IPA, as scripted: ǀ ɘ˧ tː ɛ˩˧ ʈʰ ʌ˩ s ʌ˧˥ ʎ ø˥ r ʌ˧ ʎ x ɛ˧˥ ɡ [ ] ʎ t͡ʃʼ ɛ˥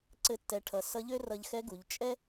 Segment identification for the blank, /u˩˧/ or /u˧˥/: u˩˧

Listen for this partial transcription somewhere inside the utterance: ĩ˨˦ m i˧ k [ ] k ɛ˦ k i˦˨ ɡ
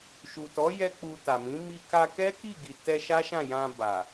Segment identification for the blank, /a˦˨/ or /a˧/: a˧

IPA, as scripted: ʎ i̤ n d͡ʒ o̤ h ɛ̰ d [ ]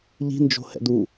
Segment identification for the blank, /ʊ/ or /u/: u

